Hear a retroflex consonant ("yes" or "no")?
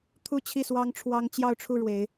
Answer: yes